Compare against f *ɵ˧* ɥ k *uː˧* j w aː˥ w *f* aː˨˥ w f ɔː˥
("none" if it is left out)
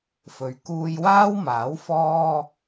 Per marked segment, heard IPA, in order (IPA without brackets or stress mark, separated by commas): ɵ˨, uː˧, m